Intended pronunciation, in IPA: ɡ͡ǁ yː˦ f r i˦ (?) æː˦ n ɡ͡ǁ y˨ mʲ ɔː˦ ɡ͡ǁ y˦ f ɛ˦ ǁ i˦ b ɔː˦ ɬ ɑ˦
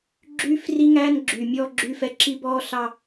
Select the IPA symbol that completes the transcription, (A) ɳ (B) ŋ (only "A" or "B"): B